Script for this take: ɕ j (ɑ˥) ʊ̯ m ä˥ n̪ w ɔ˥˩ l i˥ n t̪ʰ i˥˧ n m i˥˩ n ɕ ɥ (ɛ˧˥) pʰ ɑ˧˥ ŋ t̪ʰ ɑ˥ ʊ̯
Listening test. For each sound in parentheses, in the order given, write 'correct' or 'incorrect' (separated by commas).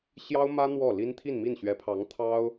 correct, correct